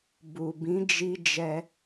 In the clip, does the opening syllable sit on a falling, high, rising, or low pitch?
low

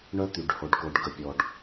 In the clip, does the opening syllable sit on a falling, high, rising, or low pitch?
high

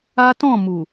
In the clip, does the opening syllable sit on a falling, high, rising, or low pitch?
high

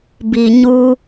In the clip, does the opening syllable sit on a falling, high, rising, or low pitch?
low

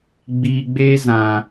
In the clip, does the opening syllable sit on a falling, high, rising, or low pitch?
low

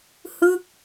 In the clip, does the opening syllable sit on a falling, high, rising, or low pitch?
falling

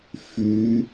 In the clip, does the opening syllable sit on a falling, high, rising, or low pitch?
rising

